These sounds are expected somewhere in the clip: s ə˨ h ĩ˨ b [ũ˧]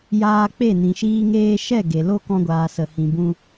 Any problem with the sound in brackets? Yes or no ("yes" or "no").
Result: no